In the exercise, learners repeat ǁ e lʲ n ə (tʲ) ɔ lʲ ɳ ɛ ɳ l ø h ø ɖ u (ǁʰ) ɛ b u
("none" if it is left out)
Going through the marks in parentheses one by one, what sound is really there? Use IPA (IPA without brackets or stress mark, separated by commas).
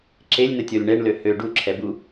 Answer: tʲ, ǁʰ